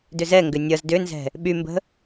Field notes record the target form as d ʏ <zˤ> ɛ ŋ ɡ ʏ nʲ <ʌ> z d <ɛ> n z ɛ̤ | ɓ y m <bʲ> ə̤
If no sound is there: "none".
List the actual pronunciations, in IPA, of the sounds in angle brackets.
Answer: z, ʌ, ʏ, b

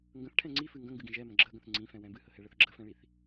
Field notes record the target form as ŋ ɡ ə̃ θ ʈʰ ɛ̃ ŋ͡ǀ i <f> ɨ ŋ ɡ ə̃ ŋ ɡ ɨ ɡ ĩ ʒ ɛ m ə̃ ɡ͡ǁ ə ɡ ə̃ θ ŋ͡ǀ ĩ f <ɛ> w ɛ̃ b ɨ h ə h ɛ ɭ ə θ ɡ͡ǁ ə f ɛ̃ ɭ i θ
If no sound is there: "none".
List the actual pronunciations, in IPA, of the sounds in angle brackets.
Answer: f, ɛ̃

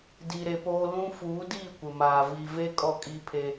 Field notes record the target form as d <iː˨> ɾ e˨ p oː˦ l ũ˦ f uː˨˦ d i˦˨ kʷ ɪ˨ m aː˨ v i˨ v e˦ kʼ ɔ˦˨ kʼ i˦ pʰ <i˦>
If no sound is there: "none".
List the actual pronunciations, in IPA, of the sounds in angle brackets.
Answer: i˨, e˦

